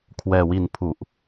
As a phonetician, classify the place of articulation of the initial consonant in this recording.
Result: velar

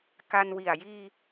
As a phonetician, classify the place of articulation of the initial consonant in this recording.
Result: velar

